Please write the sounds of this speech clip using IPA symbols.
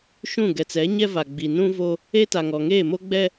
ʃ ũ˦˨ ɡ ɛ˨ t͡s ɛ˨˦ ɲ ɛ˦ v a˨ ɡ͡b i˨ n ũ˦ v o˦ | e˦ t a˨ ŋ ɔ˨ ŋ eː˦˨ m o˦ ɡ͡b ɛ˦

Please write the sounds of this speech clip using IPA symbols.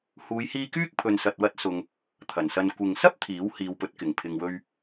h uː˨˧ j h iː˧ k yː˥ k̚ pʰ ɵ˧ n s ɐ˧ t̚ w ɐ˥ t̚ s ʊ˧ ŋ | t̪ʰ ɐ˨˩ n s ɐ˧ n kʷ ɪ˨ ŋ s ɐ˥ p̚ t̪ʰ iː˨˥ w h iː˨˧ w p ɵ˨˥ t̚ k ɪ˨˩ ŋ pʰ ɪ˧ ŋ w ɵ˥ ɥ

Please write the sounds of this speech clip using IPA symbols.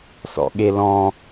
s ɔ̰ ɠ e l ɔ̃

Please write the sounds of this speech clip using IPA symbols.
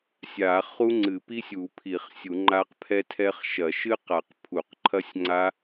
sʲ a˨˩˦ χ u˦˥ ŋ͡ǀ ɨ˨˩˦ p i˦˥ sʲ u˨˩˦ pʰ i˨˩˦ χ sʲ u˨˩˦ ŋ͡ǃ a˦˥ q pʰ ɛ˦˥ tʰ ɛ˦˥ χ ʃ ɐ˨˩˦ ʃ ɨ˦˥ q a˨˩˦ q pʰ u˨˩˦ q ǃʰ ɐ˦˥ sʲ ŋ͡ǀ a˦˥

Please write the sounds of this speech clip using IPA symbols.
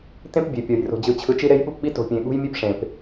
t ẽ˦ p bʲ e˨ pʲ ɔ˨ j r o̤˨ d͡ʑ ɯ˨ t͡ɕʰ ɯ˨ t͡ʃ i˦ ɾ e˦ j ɓ u˦ p ɓ i˦ t o̤˨ pʲ ẽ˨ ɠ ṳ˦ j mʲ e˦ p ʂ ẽ˨ p

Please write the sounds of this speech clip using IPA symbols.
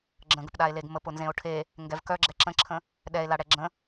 ɡ͡ǁ ə̃ ɡ ə p ɗ a e̯ l e ɡ m ə p ʊ n z ẽ o̯ ʈʰ e | ŋ ɡ ɛ v k œ ɡ͡ǁ ɛ ǁ ə̃ ǁʰ ə̃ | ɗ ɛ e̯ l a ɽ ɛ ɡ͡ǁ ə̃

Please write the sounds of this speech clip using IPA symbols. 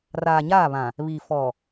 r aː˨ ɲ aː˦˨ β ã˨ | β i˨ f ɔ˨

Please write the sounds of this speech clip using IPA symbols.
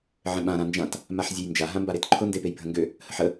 ʕ ə̃ ɓ ã ɾ ã n d͡ʒ ã t | m a ħ zʲ e j n d͡ʒ a ɦ ã m b a ɾ e t ǃʰ ʊ n d e p e j bʱ ə̃ ŋ ɡ ø | h ə ħ ə

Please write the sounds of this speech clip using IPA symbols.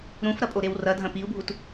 ɾ ũ f ɾ ɐ pʼ o ɾ e w r ɐ dʱ ɐ̃ p i u̯ bʱ u t

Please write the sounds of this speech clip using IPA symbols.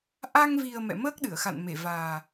ʔ a˧ ŋ v i˨˩ ə̯ m ɛ̰˧˨ m əː˦˥ k̚ ɗ ɨ˧˩ ə̯ x a̰˧˨ n m e˧˩ v aː˨˩

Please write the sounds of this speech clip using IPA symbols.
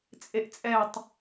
t͡sʼ e ʔ t͡sʼ ɛ tˤ

